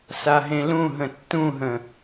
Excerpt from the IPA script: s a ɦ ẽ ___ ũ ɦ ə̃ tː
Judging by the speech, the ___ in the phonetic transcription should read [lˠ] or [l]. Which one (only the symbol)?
l